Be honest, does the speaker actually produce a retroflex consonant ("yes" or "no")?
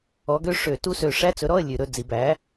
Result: yes